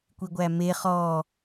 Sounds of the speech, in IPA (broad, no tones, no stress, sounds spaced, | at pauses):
kʷ i ɡʷ æ m e χ ɔ